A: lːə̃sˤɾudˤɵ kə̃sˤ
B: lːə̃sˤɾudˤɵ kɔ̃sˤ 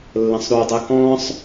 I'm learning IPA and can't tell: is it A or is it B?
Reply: B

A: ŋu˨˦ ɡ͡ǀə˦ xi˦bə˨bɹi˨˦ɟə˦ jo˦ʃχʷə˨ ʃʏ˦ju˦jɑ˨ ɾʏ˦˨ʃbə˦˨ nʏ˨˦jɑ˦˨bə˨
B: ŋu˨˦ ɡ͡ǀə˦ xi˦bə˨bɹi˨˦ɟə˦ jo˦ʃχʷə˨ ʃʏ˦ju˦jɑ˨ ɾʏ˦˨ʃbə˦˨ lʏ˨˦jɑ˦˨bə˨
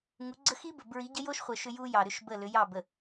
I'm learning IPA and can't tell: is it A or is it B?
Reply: B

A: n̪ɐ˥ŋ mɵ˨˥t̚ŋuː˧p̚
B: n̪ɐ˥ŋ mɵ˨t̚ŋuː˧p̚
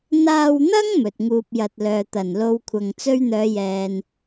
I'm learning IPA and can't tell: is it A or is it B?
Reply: B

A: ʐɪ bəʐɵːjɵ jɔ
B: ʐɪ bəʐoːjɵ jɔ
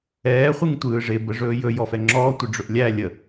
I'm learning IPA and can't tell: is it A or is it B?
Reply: A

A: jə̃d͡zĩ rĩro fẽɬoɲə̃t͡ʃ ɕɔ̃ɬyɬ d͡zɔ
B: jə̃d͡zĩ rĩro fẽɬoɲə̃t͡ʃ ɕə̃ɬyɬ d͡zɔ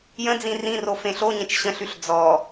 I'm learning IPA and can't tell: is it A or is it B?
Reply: B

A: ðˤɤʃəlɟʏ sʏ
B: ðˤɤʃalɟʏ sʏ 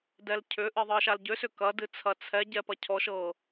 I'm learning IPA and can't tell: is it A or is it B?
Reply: B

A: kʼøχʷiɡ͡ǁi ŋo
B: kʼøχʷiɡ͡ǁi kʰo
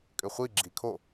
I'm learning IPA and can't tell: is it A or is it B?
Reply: B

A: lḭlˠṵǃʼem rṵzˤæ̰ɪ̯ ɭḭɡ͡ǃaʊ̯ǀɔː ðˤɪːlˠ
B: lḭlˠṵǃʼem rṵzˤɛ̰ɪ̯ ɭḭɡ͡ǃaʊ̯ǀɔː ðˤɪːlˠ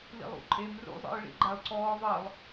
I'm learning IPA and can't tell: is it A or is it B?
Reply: B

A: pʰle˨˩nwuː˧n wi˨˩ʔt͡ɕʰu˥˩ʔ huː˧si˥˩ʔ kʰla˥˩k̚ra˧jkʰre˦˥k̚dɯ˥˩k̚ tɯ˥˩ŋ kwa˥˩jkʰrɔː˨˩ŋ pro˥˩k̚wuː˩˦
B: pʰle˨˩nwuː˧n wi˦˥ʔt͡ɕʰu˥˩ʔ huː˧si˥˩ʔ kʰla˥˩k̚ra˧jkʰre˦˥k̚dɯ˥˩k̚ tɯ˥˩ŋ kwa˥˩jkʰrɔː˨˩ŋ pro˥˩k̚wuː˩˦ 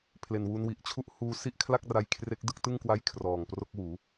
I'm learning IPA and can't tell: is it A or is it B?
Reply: A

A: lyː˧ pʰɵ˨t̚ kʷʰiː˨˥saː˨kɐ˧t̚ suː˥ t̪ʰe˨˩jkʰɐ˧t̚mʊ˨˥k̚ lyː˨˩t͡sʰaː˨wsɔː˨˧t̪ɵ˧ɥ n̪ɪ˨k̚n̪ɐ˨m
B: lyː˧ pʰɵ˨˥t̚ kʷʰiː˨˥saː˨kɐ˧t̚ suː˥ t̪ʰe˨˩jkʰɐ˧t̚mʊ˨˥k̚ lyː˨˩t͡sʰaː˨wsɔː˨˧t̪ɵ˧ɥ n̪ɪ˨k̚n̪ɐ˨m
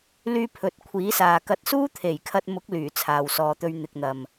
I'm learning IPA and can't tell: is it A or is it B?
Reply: B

